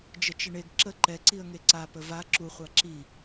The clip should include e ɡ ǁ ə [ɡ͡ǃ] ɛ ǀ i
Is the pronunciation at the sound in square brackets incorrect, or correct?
incorrect